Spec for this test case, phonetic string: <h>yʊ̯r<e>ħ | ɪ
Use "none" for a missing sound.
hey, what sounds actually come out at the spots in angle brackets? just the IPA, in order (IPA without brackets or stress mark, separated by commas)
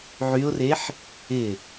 ʕ, e